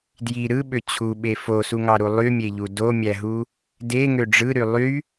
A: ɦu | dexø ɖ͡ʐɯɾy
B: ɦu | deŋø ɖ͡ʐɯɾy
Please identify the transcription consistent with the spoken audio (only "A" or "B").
B